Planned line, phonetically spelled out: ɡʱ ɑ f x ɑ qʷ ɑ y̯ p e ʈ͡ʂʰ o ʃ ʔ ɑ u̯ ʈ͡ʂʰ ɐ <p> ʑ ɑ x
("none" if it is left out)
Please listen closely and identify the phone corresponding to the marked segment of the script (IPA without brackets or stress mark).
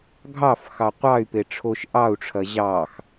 none